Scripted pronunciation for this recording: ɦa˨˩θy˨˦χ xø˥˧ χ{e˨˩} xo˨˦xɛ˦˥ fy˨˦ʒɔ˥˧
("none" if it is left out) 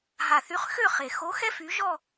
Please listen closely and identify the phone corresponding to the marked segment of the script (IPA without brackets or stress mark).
e˨˩